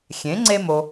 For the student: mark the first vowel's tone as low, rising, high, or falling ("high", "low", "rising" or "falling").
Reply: rising